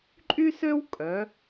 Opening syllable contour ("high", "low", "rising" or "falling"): high